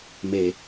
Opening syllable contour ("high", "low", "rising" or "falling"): low